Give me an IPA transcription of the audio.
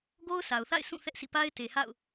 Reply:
ɡo˦ʊ̯sʰa˨ʊ̯θa̰˦˨ɪ̯ sũ˦˨ θɛ˦ʔsʰḭ˦˨ pa˦ɪ̯te˨ha̰˦˨ʊ̯

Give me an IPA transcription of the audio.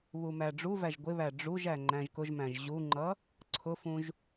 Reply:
βumæɖ͡ʐuvæʒ ɡʷɪβæ ɖ͡ʐuʒæ ŋ͡ǃæ̃ʒkʊʒmæ̃ʒ ʑuŋ͡ǃʌ | ǀʰʊfũʒ

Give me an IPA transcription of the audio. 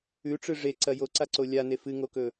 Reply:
ʉʈ͡ʂɨ ʐeǀɐ joǀaǀo lʲane fɨŋokɵ

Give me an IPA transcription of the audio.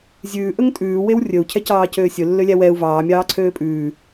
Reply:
zʲʉːʔɵŋ tʼʉːwew rʲɵu̯cʰɛcɑːcøː sʲɵlːølʲæ wɛu̯ vɑːmʲɑːǀʰøː pʼʉː

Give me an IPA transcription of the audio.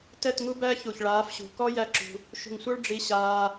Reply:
tɛ˦˨tŋu˦bæ˦ çu˨ç ɭaː˨˦fɕṳ˨ kɔ˦ jæ˦ǁṳ˧ | ʃṳ˨ŋsʷə˞˦ɭ ɖ͡ʐi˧ɕaː˧

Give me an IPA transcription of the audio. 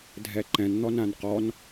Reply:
dʱɛǃɛ̃n n̪ɔnãnqɔn

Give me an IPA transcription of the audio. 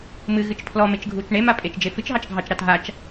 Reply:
mɨɣɨt͡ʃ pʰlɔmet͡ʃ ɡʱut͡ʃ ɳema pʼet͡ʃd͡ʒe fɨt͡ʃɦɑt͡ʃ ɡʱɑt͡ʃɾɑt ɦat͡ʃ

